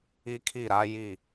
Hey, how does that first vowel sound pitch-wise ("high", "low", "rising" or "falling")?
high